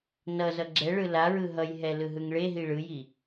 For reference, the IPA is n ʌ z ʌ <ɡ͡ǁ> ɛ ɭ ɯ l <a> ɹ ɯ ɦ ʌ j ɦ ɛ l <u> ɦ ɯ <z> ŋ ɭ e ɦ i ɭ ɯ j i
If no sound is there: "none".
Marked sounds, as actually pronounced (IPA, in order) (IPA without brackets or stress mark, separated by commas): ɡ͡ǁ, a, ɯ, none